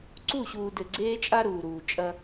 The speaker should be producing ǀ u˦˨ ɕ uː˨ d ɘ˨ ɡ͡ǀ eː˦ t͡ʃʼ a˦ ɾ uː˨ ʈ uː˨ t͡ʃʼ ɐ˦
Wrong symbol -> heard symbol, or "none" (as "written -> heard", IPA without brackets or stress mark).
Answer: ʈ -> ɾ